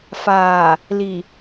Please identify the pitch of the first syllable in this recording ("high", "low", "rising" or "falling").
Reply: low